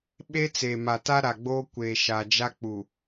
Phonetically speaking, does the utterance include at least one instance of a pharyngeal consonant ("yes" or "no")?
no